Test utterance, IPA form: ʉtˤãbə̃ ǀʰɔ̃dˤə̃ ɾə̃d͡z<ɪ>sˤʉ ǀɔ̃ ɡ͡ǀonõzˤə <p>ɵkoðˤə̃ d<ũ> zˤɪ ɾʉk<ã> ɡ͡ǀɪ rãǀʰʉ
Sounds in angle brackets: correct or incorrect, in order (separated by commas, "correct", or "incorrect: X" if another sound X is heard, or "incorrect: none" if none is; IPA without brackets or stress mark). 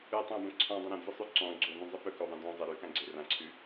correct, correct, incorrect: õ, correct